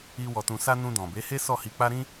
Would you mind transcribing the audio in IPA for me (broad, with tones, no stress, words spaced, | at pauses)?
i˧ wɔ˧tũ˧sa˦ nũ˧dɔ̃˨be˨˦he˦ sɔ˦˨hi˧k͡pa˦ ɾĩ˦